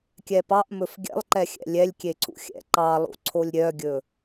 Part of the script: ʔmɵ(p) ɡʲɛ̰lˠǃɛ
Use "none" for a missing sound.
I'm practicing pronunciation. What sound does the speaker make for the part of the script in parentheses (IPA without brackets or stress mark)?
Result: f